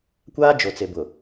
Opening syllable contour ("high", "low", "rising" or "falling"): high